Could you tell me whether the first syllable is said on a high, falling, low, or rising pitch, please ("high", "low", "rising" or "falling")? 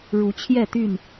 rising